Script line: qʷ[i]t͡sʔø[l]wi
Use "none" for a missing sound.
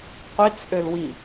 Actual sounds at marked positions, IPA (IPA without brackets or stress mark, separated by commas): i, l